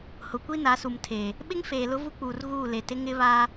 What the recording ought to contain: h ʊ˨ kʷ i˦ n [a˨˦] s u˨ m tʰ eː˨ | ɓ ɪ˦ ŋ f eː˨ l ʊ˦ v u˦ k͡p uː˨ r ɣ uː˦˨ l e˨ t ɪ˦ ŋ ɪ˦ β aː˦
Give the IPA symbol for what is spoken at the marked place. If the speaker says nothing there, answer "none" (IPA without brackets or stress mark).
a˨˦